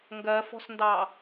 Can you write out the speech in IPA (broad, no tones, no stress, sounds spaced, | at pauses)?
ŋ ɡ ɜ f ɔ̤ s n d ɑ